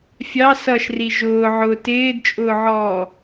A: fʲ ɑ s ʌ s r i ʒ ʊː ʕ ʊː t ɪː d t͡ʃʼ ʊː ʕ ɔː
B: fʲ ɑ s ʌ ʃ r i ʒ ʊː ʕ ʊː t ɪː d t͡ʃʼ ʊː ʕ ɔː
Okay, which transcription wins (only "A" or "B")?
B